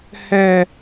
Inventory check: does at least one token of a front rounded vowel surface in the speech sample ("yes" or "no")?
no